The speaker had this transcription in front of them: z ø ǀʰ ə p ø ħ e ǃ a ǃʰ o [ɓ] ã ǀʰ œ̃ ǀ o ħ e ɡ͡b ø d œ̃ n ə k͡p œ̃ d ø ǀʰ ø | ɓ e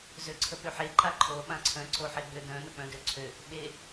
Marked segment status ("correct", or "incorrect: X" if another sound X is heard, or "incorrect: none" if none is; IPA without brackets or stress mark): correct